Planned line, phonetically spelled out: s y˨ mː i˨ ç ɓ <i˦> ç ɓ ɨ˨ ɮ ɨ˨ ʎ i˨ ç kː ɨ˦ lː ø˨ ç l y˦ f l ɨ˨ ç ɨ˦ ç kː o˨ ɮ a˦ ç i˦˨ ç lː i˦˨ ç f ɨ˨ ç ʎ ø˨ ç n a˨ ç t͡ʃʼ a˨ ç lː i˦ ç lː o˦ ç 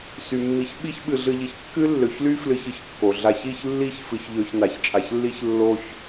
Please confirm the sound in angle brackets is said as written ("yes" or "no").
yes